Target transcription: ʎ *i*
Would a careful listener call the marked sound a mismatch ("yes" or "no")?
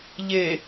yes